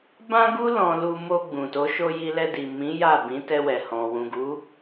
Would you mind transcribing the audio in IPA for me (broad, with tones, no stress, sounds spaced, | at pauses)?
b ã˦ ɡ u˦ l ɔ̃˧ l u˧ m o˧ ɡ͡b ũ˨ t o˨˦ ʃ o˧ j i˧ l ɛ˧ d i˨ m ĩ˨˦ j a˦˨ b ĩ˨˦ t ɛ˧ w ɛ˨ h ɔ̃˨ w ũ˨ ɡ u˨˦